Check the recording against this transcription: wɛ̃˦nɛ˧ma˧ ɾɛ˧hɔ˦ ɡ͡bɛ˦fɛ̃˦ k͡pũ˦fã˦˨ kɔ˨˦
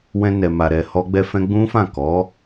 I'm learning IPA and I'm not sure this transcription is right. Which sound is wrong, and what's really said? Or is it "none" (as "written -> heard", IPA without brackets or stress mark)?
k͡p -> ɡ͡b